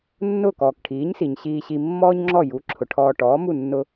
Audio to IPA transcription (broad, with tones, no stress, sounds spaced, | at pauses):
nː ʊː˥˩ k ɔː˩ k ʈʰ iː˩˥ ɲ s i˩ ɲ ɕ iː˧ ɕ i˧ mː ɔː˥ ɲ ŋ͡ǁ ɔ˥˩ j u˩˥ ǁʰ ʊ˩ ʈʰ ɔː˧ ʈ ɔː˩˥ m u˥˩ nː ʊ˧